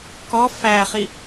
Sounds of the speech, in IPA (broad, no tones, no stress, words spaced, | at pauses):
kɔ fæχi